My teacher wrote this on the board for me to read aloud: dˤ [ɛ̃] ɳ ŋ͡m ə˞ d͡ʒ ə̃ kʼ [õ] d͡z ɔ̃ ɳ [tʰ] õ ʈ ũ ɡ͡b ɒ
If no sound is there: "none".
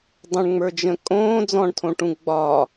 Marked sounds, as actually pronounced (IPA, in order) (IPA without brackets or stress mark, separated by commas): ə̃, õː, tʰ